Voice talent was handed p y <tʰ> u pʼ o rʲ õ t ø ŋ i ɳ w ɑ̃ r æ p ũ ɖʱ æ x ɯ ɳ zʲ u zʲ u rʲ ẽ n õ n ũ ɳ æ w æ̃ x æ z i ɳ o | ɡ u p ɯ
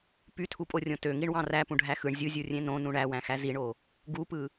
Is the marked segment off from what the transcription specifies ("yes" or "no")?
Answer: no